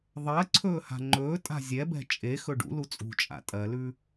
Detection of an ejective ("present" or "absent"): present